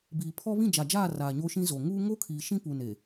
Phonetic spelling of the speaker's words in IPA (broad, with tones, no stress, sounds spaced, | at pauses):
b iː˨ pʰ ɔ˦ β ĩ˦˨ d͡ʒ a˨ d͡ʒ aː˦˨ r aː˨ ɲ o˦ ʃ ĩ˦ z o˨ ŋ uː˦ ŋ o˦ kʰ iː˨ ʃ ĩ˦ p u˨ n e˨